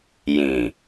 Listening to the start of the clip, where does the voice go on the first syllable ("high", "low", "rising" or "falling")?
low